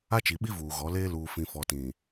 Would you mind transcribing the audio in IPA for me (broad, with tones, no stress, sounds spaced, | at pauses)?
a˦ t͡ʃ i˨ ɓ i˦ v uː˨ ɣ ɔ˨˦ l eː˦ l uː˨ f ĩ˨ f ɔ˨ t ĩ˨